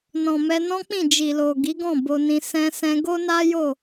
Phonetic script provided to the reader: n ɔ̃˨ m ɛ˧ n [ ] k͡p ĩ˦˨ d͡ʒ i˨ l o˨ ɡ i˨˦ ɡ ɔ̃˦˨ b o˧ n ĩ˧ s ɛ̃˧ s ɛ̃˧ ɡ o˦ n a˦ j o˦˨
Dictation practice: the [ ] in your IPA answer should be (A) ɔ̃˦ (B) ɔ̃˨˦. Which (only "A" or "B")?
A